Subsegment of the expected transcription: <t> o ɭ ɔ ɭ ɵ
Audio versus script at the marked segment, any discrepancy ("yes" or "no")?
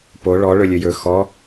yes